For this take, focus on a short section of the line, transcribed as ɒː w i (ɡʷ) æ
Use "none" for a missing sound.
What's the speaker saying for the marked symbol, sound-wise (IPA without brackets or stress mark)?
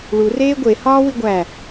ɡʷ